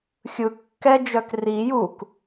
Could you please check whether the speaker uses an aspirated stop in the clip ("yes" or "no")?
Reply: no